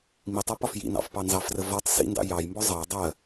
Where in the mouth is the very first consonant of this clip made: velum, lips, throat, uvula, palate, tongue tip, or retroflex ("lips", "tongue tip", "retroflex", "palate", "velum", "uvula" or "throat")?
lips